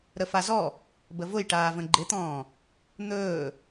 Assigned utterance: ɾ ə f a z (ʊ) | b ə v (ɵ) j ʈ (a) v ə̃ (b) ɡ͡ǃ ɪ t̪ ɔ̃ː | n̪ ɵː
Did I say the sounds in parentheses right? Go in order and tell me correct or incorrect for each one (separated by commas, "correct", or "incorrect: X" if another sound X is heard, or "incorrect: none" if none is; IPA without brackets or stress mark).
incorrect: ɔ, incorrect: ʊ, incorrect: aː, incorrect: none